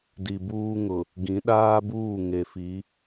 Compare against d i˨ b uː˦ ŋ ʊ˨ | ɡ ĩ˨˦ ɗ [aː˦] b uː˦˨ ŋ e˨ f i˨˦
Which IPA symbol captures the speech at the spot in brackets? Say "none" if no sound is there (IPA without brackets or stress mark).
aː˦